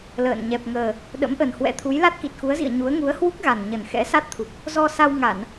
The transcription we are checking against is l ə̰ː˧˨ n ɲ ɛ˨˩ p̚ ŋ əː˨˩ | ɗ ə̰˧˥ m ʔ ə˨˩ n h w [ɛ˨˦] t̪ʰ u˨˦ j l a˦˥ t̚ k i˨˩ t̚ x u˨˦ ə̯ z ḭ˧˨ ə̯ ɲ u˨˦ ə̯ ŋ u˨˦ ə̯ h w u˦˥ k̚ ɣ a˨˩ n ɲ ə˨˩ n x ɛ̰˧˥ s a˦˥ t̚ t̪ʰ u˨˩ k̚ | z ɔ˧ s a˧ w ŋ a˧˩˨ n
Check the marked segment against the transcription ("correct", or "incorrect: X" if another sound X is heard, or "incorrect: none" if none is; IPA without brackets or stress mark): incorrect: ɛ̰˧˥